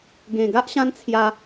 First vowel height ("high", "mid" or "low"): mid